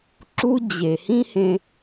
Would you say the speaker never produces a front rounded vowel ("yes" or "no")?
yes